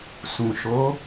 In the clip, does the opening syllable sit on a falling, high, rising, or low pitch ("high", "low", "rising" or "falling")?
low